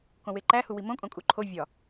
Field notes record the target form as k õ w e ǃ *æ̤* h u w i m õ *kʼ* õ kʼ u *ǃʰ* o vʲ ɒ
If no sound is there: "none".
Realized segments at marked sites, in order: æ, kʼ, ǃʰ

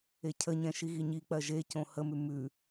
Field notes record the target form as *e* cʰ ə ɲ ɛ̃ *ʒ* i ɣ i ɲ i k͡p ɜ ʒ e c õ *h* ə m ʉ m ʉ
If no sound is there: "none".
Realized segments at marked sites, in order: e, ʃ, h

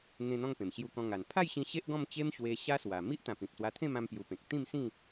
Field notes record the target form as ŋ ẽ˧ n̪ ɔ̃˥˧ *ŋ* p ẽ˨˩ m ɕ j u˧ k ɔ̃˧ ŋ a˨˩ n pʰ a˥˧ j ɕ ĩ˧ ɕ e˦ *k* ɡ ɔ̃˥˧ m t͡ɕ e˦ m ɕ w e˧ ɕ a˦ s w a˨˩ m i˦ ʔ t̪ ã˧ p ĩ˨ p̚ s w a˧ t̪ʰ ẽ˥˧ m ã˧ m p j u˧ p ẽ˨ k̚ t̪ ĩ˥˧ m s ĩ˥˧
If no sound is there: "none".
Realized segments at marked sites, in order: ŋ, ʔ

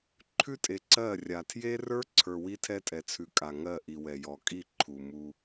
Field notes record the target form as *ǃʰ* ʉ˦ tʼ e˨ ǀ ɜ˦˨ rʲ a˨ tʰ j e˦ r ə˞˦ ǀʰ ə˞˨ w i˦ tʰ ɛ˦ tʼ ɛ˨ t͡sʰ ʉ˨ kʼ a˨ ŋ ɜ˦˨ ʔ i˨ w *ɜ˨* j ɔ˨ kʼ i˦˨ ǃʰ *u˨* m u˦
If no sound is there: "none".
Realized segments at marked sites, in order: ǃʰ, ɛ˨, u˨

